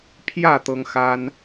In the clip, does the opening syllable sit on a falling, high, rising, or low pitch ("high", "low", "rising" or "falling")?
falling